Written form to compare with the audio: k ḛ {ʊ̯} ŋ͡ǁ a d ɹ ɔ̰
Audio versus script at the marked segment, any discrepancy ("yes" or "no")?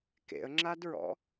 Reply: yes